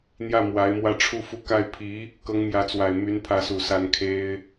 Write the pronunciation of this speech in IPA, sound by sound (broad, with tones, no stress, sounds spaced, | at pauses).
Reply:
n̪ j ä˥˩ m w a˧˥ ɪ̯ m w ä˥˩ ʈ͡ʂʰ u˥ f u˥˧ k a˥˩ ɪ̯ pʰ i˧˥ | k ɤ˧˥ ŋ m j ä˧˥ t͡s w a˨˩ ɪ̯ m y˧˥ n pʰ ä˧˥ s u˨˩ s a˧˥ n kʰ e˥ ɪ̯